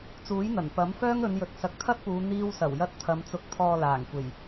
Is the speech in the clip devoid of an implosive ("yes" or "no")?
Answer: yes